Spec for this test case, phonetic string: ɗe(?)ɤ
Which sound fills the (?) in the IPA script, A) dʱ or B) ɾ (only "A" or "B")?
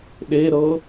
B